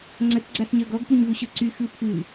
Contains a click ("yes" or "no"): yes